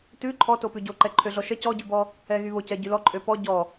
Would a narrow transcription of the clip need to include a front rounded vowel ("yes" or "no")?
yes